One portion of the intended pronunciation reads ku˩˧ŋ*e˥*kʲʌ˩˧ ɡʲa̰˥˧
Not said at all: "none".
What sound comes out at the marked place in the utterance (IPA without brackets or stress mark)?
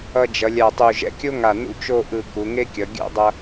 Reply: e˥